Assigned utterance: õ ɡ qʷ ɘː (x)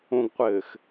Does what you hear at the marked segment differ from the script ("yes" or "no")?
no